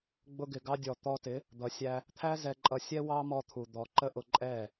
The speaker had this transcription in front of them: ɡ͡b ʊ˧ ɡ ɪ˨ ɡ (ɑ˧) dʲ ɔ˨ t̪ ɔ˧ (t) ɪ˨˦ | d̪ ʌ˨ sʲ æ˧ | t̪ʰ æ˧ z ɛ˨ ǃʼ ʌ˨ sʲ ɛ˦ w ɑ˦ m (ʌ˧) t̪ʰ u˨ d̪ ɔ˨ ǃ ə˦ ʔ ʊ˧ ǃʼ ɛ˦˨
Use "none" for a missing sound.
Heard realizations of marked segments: ɑ˧, t, ɔ˧

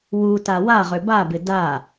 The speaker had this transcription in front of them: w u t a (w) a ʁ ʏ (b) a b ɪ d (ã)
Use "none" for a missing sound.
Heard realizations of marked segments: w, b, a

